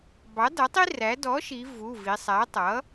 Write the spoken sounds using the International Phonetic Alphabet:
bɑ˩˥dʌ˩˥tˤi˦ ræ˩˥ dɔ˩˥ʃi˩˧ vu˩˧˩vi˩˧sˤæ˩˥ tˤʌ˩˥

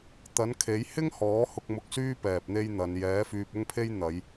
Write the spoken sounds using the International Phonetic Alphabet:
t̪ɐ˨˥nkʰe˨˥j hɪ˥ŋhɔː˨˥ hʊ˧k̚mʊ˧k̚syː˥ pɛː˨p̚n̪e˥jn̪ɐ˨˧n jɛː˨˥fyː˧p̚ʊ˥ŋpʰe˥j n̪ɐ˨˧j

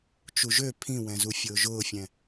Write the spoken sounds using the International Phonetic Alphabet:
t͡ʃuʒø pʰĩwɛ̃zu fʲʊːʒʊːfʲɛ̃

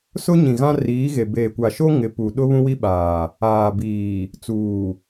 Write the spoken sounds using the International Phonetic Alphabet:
sʊ˦ɲĩ˨ ɣã˦riː˨˦ɣe˨ beː˨kʷa˨ʃo˦ ŋɪ˨˦pu˨ ɗʊ˦βũ˦wi˦ɓaː˨ | aː˨biː˨ | t͡suː˨

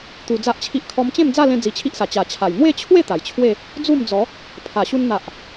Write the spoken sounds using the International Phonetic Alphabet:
t̪u˧d͡za˦ʔt͡ɕʰi˦ʔ kʰɔ˧mt͡ɕẽ˥˧md͡za˥˧ lẽ˧ d͡zi˧t͡ɕʰi˦ʔsa˨˩ t͡ɕa˨˩t͡ɕʰa˨˩j n̪we˥˧t͡ɕʰwe˥˧ t̪a˨˩jt͡ɕʰwe˥˧ | d͡zu˥˧md͡zɔ˨˦ | pʰa˨˩ɕu˧n n̪a˨ʔ

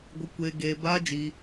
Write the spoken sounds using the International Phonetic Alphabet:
ɡʷɨ˧kʷeː˧ ɡeː˧ baː˦d͡ʒiː˧

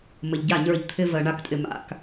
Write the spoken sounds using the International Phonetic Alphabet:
mə˨ʎɟa˦˨ɲə˞˦˨ʎ t̪ʰɪ˦vɜ˨ɳa˦ktʼɪ˨ ma̰˨k

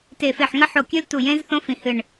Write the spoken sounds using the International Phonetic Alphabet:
te˧˩ fe˧˩ħŋɐ˦˥ħo˧˩kʲʉ˦˥l tu˧˩jẽ˦˥zθõ˦˥ fĩ˧˩hɨ˧˩ɳ

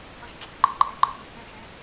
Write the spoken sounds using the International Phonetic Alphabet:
jʌʃǁʰɯǃə̃ ǃʼɛǃəxjub lɛ̃ʃɛ

